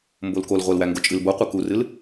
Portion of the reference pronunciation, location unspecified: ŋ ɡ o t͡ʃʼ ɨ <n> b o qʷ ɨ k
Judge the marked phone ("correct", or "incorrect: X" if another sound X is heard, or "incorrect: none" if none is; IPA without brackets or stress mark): incorrect: l